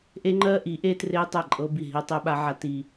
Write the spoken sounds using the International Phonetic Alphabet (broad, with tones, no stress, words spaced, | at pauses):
ʔe˦ŋ͡ǃɜ˦ʔi˨˦ ʔe˦tre˦tˤa˦˨ ǃʼɤ˦bi˦˨ ɦi˦tˤɛ˦ɓa˦ʕa˦ ti˦